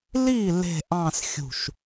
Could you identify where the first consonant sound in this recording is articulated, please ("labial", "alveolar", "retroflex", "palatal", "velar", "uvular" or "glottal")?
alveolar